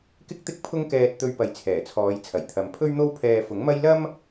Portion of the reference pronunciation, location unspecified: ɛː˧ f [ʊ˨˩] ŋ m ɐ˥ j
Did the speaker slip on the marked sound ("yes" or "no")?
yes